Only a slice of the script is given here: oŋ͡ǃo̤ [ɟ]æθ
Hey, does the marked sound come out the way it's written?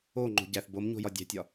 yes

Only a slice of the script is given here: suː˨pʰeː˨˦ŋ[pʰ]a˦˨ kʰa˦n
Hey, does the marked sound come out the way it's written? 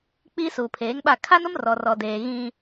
no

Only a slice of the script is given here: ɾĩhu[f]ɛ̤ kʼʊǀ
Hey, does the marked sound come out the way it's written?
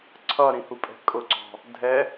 no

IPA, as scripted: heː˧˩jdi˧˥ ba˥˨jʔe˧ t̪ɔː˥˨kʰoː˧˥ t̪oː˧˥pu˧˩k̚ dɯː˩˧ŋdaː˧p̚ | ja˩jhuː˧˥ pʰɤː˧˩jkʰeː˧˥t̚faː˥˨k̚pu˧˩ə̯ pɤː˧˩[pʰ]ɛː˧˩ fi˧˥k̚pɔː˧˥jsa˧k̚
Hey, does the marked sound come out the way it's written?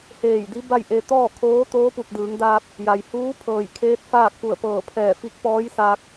yes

